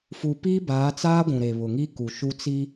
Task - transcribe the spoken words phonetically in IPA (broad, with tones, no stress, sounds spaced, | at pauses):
f u˨ p iː˦ b aː˨˦ t͡s aː˦ ɡʷ ũ˨ ɾ e˨ β ʊ˨ ŋ i˦ k u˨ ʃ u˦ t͡s i˦